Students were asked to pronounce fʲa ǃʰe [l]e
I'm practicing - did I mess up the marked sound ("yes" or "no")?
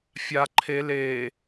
no